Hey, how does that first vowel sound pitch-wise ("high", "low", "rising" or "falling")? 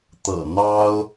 low